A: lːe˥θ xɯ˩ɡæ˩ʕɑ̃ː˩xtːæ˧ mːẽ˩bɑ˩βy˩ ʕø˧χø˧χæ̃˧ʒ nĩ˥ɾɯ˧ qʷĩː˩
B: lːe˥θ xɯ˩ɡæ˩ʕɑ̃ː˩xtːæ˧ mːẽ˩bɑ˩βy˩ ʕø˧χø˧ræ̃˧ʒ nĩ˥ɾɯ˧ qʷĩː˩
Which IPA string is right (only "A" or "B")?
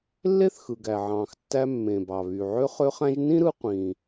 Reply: A